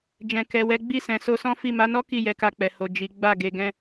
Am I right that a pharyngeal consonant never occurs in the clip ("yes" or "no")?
yes